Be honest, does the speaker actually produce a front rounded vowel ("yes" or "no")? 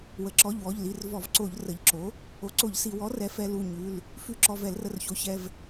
no